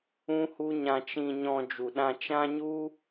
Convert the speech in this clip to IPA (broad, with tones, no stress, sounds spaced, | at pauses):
ũ˦ h u˦ ɲ ã˧ t͡ʃ ĩ˧ ɲ ɔ̃˧ d͡ʒ u˨ ɗ ã˧ t͡ʃ ã˦ ɲ u˦